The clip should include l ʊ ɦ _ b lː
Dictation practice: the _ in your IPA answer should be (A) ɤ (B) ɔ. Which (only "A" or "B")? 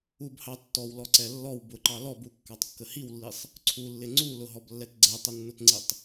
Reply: B